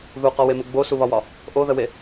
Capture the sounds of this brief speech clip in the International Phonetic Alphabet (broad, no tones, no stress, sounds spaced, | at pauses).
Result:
ð u q ɔ w e m ə ɡ͡b o s u β ɒ w ɒ | ʔ o ð ə w e